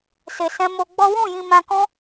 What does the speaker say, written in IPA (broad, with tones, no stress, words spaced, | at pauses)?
se˧sɛ̃˦mo˦ ɡ͡bɔ˦ wũ˦˨jĩ˧ mã˧kɔ̃˦